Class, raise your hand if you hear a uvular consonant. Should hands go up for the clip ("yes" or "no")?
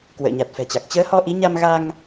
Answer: no